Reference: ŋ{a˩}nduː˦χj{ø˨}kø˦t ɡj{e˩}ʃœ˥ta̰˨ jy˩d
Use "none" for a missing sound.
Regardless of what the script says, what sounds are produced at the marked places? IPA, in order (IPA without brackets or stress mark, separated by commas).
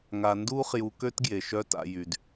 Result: a˨, u˨, e˩